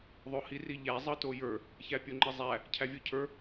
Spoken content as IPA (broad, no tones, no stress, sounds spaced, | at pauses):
ðˤ o h i r i ʎ æ zˤ ɤ t o j ə˞ | ç æ pʲ o ŋ͡ǃ e zˤ æ | cʰ æ vʲ o cʰ ə˞